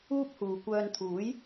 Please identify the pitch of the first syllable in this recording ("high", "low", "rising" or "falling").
high